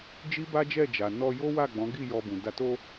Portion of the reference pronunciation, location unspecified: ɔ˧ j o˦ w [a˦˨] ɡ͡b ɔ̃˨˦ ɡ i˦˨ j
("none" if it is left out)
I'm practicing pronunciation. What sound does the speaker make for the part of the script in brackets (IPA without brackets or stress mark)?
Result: a˦˨